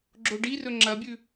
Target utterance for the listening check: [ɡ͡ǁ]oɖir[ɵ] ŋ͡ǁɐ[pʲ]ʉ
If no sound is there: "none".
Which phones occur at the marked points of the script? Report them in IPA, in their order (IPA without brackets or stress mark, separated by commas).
ɡ͡ǁ, ɵ, bʲ